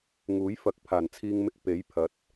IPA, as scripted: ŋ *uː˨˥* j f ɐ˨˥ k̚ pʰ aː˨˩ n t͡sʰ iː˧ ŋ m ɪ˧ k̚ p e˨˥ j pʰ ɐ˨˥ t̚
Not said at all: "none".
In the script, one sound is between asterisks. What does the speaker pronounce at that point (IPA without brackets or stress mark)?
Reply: uː˨˥